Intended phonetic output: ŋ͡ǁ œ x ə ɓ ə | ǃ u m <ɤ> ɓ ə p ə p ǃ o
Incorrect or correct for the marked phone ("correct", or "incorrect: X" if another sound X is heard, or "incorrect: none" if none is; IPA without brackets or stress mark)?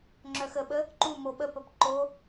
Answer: incorrect: o